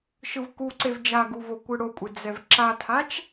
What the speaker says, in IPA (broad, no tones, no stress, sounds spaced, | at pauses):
ʃ ɯ v k u ǀ e v d͡ʒ a ɡ u v o kʷ ɯ ɽ o kʷʼ e d͡z ɛ v ǁ a tʰ a t͡ʃ